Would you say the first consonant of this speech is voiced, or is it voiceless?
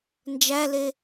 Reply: voiced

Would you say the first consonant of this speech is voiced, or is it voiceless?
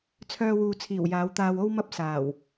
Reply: voiceless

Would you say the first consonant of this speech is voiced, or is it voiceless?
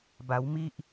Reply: voiced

